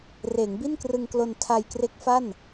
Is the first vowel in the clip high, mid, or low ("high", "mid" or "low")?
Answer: mid